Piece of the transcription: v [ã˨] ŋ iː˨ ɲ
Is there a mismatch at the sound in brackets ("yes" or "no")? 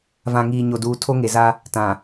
no